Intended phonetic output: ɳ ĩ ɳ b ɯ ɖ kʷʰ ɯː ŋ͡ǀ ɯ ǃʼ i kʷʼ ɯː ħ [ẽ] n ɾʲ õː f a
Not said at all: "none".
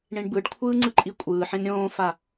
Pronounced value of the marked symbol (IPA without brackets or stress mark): ẽ